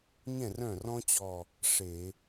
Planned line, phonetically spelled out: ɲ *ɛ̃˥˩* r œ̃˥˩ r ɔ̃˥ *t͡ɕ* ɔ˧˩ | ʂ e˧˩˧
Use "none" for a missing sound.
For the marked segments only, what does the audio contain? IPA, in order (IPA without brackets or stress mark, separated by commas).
ɛ̃˥˩, t͡ɕ